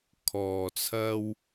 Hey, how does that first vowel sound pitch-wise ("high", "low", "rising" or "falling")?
low